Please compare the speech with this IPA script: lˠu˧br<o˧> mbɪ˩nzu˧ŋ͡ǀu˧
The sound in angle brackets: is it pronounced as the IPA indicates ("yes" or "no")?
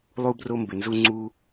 yes